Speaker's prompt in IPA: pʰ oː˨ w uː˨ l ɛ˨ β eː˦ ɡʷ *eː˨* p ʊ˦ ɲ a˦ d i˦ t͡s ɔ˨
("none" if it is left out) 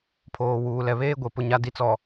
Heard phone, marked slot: e˨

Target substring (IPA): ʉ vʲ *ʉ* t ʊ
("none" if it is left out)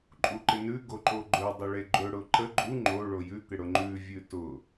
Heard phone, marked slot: ʉ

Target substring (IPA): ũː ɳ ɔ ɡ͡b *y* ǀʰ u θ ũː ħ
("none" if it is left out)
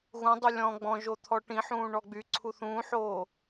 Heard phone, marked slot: y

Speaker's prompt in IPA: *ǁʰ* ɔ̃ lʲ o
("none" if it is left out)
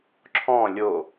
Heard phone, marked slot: ǁʰ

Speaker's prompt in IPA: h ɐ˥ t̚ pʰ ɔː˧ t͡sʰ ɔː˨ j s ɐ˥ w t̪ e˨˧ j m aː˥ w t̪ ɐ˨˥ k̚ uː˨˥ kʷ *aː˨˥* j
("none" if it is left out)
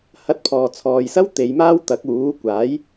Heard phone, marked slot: aː˨˥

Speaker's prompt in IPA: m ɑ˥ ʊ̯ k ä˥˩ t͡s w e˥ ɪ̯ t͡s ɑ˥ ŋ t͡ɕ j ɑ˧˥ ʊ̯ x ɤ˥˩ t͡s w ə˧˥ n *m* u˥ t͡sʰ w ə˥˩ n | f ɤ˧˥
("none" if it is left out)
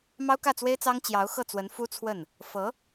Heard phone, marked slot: f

